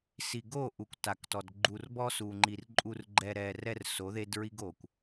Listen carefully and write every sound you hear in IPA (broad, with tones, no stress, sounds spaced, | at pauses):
s i˨ ɡ o˦˨ ʔ u˨ kʷ t a˨ k t ɔ˨ d ɡ͡ǃ u˨ r b ɔ˦ s u˨ ŋ͡ǃ i˨ r ǃʼ u˨ r ɡ͡ǃ ɛ˨ ɾ ɛ˨ r ɛ˦ r s o˨˦ ð e˦ d ɹ i˦ ɡ o˨ kʷ